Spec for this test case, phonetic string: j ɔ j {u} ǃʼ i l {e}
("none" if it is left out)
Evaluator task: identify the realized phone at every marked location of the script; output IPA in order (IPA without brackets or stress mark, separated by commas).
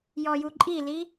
u, i